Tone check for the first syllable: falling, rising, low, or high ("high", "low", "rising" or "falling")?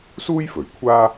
high